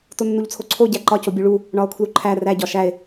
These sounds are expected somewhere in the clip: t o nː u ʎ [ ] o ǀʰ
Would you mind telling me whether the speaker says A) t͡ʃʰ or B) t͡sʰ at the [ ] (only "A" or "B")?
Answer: B